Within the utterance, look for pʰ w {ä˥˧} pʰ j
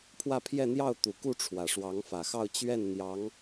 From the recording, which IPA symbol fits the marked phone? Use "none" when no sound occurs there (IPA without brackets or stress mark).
ä˥˧